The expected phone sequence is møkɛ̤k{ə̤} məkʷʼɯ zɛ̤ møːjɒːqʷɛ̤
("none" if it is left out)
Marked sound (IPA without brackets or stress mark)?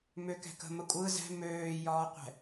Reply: ə̤